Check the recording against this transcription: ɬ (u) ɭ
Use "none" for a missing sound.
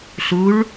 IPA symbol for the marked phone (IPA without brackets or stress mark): u